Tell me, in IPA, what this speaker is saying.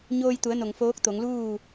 ɲoː˧jt̪u˩˧ə̯ no˩ŋ foː˧˥k̚t̪o˩˧ŋ luː˥˨

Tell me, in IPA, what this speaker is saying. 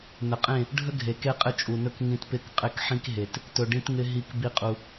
nə˨qʼẽ˦˨ | ɖʱə˦ ɡʱe˨ke˦ qʼɪ˧t͡ʃʼu˨nɵ˧k ŋĩ˧tpɪ˦˨k qʼɪ˦˨kħĩ˦k ɦe˧t | tɵ˧ɖĩ˦tŋɪ˦ ɦi˧k bi˦qʼu˧

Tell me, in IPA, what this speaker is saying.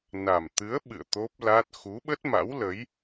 na˨˩m t̪ɨ˨˦ə̯ ɓɨ̰˧˨ə̯t̪o˦˥p̚la˦˥t̚ xu˨˦ɓə˦˥t̚ma̰˧˥wlə˨˦j

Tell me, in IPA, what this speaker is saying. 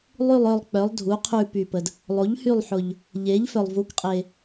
lˠy˦˨lˠ œ˦˨lˠk͡pœ˩˥lˠ dʱu˩˥ qʰʉ˦˨py˨˩pə˨˩d | lˠo˩˥ʎhy˦˨lˠ ħʊ˨˩ʎ | ʎe˩˥ʎfœ˨˩lˠ vu˩˥kqʼe˨˩

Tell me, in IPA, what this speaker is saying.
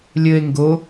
lʲɘe̯ ŋɡo

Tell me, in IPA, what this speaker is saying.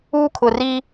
uː˦kʰʊ˨riː˦

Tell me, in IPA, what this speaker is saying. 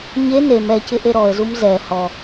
ɲe nem ɛcɪʔe ɾɔə̯zum zɛ hɔ

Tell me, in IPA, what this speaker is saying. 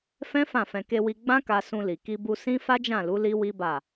fɛ̃˦ fã˦˨fɛ̃˧ ke˧wi˧ ɡ͡bã˦ka˧sũ˧li˨ ki˧bu˧ sĩ˦fa˦d͡ʒã˦˨lu˨˦ li˦wi˦ba˦˨

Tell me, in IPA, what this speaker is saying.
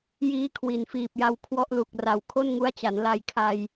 jiː˦˥kʰwi˨˩nfiː˨˩p̚ja˧w kʰwɔ˦˥ʔlu˨˩k̚ra˨˩w kʰo˥˩nŋu˦˥a̯t͡ɕa˩˦n la˧jkʰa˧j

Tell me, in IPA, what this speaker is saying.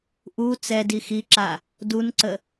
ʔu t͡sɛ dixiǁa | dunǀə

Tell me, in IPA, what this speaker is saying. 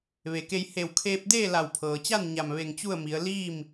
ʋe˩ke˧j he˧˩wkʰeː˧p̚deː˥˨ la˧˩wpʰɤː˩t͡ɕa˥˨n ɲa˧˩mʋe˧˩ŋt͡ɕu˥˨ə̯mi˩˧ə̯ liː˥˨m

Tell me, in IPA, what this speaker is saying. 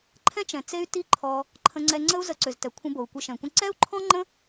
ǃʰɛ̃˦t͡ʃɛ̃˨ t͡se˦y̯ ti˦ ǃʰɔ˧ | ǃʰə̃˧ŋ͡ǀɛ˧ŋ͡ǀə˦u̯ zə˧ǀʏ˨ztɛ˨kʷʰə̃˧ bo˨u̯kʷɪ˧ʃɛ̃˨kʷə̃˦ ǀɛ˦u̯ǃʰɔ̃˦ŋ͡ǃə̃˦

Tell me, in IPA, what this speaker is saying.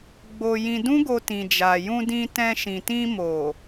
ɡ͡bo˧jĩ˧ dũ˦ɡo˧ tĩ˨d͡ʒa˨jũ˧ dĩ˧tɛ̃˧ ʃĩ˨tĩ˧mo˨

